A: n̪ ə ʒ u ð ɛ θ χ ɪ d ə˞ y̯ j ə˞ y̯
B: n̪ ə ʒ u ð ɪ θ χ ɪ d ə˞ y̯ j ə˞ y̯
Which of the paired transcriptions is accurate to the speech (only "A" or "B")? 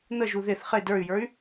B